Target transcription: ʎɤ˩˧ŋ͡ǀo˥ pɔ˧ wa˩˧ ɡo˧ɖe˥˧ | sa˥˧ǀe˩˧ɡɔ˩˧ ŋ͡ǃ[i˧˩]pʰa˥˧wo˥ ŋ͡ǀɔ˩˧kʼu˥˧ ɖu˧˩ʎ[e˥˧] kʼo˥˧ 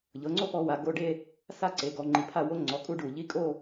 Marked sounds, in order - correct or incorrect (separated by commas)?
incorrect, incorrect